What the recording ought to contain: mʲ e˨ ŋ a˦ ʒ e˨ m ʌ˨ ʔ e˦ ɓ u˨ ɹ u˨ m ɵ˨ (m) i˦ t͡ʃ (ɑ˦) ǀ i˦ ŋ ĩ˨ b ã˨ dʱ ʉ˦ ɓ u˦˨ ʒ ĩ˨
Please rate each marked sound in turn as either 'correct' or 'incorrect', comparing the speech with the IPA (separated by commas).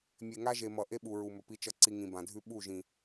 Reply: incorrect, incorrect